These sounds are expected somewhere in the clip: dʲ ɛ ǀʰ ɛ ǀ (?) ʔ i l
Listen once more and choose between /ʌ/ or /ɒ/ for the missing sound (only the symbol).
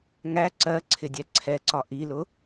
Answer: ɒ